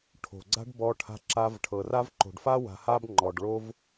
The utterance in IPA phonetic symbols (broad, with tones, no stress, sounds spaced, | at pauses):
ʈʰ o̤˨ ɡ͡ǀ a̤˦ ɖ b ɔ˧ ʈʰ a̤˧ ǁ a˧ v ʈʰ ɤ˨ r a˦ v ǃ o̤˨ ɖ f a˦ w a̤˧ h a˦ b ŋ͡ǃ ɔ˨ ɖ ɭ o˦ v